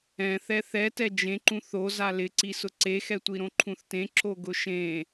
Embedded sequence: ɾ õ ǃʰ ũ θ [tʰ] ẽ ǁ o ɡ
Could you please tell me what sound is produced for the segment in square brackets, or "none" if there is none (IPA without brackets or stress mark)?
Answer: t